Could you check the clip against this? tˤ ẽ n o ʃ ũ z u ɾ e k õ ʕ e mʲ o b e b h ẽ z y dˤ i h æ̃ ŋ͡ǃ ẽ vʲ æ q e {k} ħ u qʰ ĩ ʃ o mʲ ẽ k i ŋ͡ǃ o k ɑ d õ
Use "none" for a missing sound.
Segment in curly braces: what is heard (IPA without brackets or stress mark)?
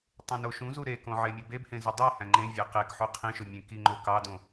k